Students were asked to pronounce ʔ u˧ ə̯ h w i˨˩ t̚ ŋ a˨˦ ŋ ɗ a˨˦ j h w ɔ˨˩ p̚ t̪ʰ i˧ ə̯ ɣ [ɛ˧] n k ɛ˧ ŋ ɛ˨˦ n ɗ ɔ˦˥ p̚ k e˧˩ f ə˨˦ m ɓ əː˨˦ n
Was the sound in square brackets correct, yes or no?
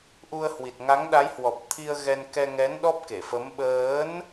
yes